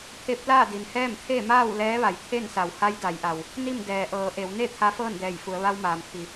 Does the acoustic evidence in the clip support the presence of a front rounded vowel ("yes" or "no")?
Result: no